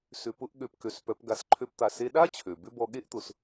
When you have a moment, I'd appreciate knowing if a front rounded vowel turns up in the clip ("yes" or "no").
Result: yes